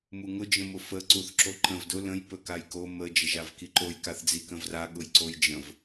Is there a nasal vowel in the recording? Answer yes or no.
yes